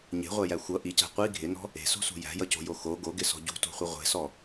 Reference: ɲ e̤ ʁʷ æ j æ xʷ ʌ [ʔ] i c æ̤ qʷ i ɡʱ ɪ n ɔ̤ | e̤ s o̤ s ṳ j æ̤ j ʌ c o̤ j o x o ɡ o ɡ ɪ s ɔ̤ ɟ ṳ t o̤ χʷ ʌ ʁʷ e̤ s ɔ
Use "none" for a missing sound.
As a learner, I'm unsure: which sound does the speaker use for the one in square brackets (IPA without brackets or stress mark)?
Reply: ʔ